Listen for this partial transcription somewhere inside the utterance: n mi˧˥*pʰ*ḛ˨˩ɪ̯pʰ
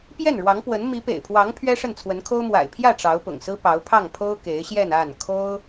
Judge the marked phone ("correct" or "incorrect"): incorrect